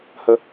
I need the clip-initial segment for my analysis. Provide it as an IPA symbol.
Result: h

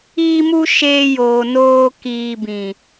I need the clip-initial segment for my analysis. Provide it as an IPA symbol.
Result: iː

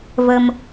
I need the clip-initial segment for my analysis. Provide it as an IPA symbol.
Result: v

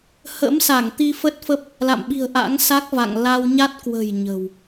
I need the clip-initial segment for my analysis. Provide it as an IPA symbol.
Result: h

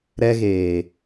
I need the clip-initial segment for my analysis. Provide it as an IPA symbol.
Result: ɾ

